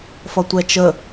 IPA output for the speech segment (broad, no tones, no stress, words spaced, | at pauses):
fʌtʷɛt͡ʃə